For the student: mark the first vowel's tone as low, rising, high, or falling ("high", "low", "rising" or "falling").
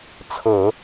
low